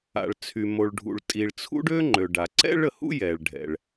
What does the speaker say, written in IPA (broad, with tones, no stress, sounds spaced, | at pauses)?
a̰˩ ɭ t͡sʰ y˩ m o˩ ɭ ɖʱ ṵ˩ ɭ tʼ i˩ ɭ t͡sʰ ṵ˥ ɖ ø˥ ŋ͡ǃ ø˩ ɖ a˩ ǀ ɛ̰˥ ɭ ə˩ h ṵ˥ j ɛ˩ ɭ ɖʱ ɛ̰˩ ɭ